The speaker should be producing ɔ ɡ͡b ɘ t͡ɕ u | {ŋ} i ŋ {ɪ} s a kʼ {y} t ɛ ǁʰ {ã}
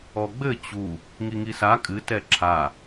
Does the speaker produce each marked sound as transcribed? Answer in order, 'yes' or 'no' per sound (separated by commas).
yes, no, no, no